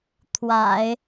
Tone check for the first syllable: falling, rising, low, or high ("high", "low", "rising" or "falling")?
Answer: low